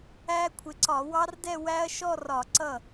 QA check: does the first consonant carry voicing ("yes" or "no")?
no